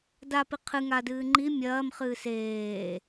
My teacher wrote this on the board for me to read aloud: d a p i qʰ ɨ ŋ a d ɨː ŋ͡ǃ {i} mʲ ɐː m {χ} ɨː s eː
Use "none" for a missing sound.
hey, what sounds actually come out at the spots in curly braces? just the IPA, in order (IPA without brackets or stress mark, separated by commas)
i, χ